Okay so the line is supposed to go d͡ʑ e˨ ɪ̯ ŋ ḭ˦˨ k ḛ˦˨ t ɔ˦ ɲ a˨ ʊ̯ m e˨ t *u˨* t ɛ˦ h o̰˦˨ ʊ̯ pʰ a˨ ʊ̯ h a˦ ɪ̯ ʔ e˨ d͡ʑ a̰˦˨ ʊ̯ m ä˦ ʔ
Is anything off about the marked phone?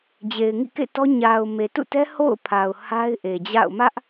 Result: yes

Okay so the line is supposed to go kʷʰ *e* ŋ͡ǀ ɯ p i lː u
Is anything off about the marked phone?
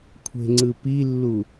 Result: yes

